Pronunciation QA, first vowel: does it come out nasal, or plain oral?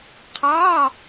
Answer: oral